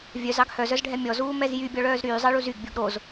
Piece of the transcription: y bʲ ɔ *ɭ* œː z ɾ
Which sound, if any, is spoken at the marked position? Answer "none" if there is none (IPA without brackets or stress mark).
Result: ɭ